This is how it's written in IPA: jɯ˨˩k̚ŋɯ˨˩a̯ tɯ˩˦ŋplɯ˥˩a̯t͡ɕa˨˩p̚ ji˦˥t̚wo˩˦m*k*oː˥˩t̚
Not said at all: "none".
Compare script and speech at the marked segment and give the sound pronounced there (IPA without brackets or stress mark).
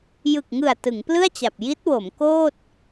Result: k